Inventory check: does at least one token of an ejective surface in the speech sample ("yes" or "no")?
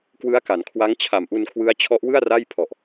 no